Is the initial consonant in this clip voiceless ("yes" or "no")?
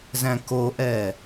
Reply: no